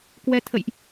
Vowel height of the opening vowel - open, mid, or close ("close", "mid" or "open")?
mid